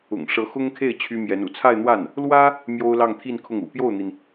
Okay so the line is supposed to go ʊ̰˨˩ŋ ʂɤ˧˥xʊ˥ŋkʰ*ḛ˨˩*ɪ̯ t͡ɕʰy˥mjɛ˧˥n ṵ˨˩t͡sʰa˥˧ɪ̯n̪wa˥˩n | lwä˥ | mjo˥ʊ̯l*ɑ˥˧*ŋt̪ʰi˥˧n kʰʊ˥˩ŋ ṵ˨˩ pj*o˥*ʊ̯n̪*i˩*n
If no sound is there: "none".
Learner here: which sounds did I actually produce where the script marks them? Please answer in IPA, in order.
e˥˩, ɑ˥˧, o˥˩, i˩

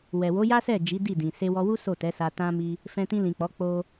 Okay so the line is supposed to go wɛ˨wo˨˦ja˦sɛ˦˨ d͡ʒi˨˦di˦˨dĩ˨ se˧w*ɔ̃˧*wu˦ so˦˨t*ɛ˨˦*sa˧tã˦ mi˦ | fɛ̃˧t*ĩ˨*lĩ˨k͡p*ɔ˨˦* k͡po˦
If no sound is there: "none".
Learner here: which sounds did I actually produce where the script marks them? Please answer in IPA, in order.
ɔ˧, ɛ˨˦, ĩ˧, ɔ˨˦

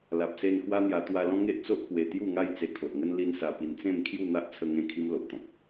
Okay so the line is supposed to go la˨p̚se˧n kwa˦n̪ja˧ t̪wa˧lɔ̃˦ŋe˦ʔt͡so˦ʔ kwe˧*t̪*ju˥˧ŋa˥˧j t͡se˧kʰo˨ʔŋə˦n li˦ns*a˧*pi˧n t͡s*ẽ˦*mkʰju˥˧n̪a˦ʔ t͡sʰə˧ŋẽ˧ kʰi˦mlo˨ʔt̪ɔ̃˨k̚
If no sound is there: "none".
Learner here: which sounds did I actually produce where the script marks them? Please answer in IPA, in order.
t̪, a˧, ẽ˥˧

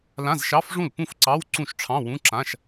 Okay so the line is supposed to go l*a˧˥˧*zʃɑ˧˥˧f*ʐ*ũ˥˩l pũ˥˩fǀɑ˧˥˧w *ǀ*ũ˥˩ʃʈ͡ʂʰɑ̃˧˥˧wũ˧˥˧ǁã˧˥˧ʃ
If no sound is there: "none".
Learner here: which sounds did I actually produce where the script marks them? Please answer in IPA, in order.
ã˧˥˧, ʐ, ǀ

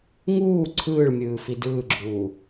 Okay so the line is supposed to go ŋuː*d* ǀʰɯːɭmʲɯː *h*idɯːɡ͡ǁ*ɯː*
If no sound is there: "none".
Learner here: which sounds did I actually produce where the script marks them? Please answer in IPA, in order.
none, f, uː

